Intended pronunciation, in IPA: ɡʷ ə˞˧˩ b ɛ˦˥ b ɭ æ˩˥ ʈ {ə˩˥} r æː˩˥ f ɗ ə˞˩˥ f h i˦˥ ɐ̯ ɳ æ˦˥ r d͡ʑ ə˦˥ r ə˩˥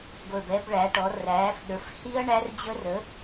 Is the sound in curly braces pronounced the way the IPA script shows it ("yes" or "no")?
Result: no